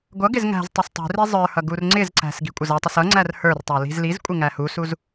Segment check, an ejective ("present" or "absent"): present